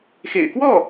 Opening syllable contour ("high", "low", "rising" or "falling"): low